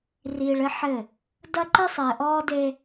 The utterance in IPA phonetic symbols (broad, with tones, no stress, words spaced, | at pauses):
riː˨ɭ ɘ˦ħɘ˦˨ | dɐ˦ ǃɛ˦sˤɘː˨ ʔɔː˦de˦